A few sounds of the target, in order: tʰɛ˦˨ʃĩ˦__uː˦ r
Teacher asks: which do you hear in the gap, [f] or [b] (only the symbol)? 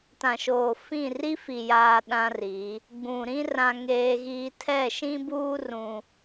b